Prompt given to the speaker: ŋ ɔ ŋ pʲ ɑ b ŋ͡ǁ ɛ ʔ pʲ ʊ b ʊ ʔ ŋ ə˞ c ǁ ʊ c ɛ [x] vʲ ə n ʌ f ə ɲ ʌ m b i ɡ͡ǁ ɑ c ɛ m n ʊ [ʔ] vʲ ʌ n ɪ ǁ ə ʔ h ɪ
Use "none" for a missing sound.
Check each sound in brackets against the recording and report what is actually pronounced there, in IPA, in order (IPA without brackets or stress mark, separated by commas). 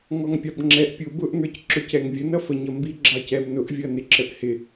ŋ, ʔ